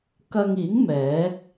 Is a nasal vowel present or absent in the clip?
absent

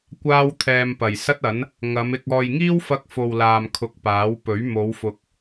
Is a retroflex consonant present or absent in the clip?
absent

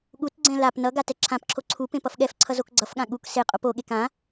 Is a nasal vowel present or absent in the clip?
present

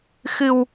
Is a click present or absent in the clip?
absent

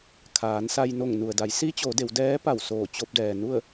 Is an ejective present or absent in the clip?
absent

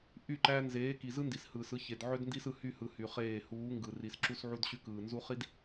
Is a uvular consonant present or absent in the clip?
present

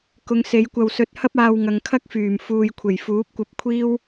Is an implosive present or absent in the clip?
absent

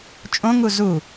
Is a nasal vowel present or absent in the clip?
present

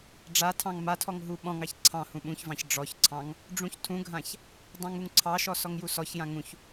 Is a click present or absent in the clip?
present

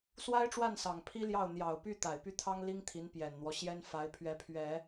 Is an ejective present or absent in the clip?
absent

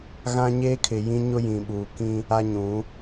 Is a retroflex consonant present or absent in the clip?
absent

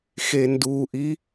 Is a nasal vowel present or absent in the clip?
absent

